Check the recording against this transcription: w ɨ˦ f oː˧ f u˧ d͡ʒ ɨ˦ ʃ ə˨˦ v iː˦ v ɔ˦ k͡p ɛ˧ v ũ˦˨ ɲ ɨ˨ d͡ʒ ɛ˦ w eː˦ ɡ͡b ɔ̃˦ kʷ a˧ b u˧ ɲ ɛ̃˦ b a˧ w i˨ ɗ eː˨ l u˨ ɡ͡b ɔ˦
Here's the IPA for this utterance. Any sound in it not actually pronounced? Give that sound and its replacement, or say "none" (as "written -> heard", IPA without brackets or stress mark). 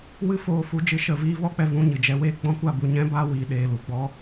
none